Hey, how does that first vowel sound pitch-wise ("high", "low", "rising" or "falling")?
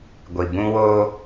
low